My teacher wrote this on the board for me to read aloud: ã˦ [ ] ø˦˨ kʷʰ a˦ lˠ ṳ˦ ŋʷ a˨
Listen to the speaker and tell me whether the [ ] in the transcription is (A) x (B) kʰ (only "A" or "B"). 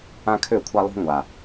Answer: B